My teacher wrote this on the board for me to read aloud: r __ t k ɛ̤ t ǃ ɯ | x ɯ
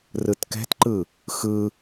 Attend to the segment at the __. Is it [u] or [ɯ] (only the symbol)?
ɯ